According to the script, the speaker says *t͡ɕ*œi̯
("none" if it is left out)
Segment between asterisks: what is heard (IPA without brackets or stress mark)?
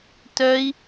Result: t